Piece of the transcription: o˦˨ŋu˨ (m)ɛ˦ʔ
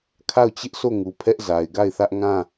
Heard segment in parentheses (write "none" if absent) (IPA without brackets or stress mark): pʰ